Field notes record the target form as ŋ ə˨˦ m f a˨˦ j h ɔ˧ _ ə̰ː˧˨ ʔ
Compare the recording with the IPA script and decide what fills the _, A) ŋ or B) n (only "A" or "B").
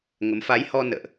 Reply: B